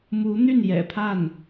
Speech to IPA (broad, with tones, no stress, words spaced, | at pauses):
mu˧˥n̪y˥˩n jɛ̰˨˩pʰa˥˩n